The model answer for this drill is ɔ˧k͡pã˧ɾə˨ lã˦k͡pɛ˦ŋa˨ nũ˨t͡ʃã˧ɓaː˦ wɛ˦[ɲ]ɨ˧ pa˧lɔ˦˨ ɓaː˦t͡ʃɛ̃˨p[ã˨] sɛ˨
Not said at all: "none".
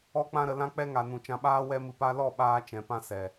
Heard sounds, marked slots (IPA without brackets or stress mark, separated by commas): m, ã˦